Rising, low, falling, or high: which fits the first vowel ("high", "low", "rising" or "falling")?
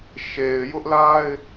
low